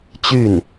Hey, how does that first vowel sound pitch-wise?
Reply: falling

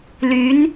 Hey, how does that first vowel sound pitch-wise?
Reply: rising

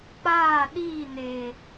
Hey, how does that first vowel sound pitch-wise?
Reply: falling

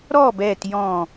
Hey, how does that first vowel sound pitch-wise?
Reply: falling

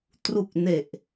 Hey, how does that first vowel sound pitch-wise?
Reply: low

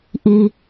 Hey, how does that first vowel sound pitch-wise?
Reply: low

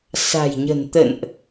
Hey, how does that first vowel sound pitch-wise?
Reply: low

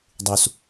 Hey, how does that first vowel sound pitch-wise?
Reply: low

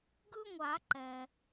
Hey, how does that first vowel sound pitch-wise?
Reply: high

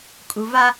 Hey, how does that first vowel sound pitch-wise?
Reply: low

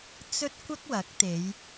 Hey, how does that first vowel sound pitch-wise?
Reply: high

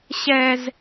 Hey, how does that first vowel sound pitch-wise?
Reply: high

